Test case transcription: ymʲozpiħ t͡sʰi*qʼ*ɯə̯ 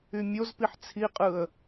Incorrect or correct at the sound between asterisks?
correct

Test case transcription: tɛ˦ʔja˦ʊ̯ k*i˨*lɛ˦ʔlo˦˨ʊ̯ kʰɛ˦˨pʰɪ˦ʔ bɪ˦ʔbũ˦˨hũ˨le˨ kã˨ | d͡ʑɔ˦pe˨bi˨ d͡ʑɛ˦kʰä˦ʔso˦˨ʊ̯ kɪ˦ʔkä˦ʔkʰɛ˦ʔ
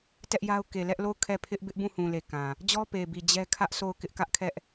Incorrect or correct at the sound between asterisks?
incorrect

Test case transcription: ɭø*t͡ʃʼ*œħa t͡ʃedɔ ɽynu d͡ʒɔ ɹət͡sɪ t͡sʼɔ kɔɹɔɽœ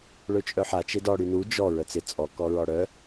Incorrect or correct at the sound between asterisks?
correct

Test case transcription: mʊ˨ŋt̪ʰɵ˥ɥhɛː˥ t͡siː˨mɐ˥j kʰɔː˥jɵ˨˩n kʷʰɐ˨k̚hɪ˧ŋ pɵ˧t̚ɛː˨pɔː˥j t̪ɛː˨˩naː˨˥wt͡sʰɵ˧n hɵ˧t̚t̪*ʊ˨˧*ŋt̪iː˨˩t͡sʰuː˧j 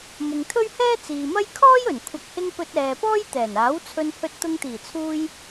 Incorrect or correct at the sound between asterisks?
incorrect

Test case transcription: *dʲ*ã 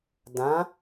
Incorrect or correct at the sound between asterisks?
incorrect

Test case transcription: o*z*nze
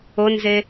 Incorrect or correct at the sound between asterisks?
incorrect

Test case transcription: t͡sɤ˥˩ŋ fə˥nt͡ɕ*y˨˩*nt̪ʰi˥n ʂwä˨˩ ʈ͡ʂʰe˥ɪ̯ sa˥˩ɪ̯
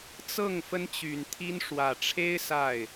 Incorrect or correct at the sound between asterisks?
correct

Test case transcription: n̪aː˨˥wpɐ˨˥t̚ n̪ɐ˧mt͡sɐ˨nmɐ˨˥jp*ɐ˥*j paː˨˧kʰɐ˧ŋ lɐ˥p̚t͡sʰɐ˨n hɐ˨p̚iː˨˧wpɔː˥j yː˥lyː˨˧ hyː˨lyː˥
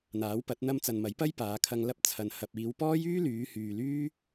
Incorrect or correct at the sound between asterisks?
correct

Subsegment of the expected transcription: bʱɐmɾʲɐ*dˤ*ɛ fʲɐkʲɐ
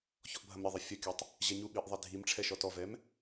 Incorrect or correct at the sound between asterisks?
incorrect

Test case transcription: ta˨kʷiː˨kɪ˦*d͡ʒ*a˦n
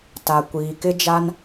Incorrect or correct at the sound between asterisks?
correct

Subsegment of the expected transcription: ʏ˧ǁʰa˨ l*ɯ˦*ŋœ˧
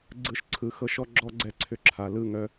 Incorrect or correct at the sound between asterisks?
incorrect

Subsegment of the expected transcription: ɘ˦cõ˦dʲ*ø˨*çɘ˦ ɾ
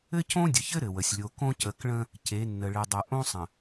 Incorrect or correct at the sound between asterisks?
incorrect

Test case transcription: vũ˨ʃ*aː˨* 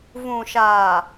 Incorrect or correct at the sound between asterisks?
correct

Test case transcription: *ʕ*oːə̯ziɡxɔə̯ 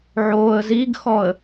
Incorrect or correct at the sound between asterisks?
correct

